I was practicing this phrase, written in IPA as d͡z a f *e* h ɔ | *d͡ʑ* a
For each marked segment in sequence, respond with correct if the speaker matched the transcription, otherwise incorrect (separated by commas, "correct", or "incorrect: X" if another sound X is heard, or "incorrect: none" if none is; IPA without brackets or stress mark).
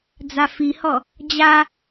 incorrect: i, correct